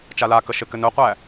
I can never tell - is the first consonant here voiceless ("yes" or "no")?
yes